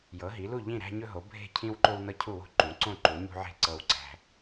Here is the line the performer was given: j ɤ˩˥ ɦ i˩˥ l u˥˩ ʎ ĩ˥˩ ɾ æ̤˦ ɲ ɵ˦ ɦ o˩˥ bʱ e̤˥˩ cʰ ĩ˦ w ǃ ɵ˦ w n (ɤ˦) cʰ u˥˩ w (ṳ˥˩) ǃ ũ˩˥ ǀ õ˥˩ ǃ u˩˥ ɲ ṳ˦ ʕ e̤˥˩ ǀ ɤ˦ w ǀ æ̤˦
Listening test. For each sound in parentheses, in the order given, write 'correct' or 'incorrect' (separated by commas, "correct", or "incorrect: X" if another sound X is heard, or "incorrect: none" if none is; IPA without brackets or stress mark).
correct, incorrect: o̤˥˩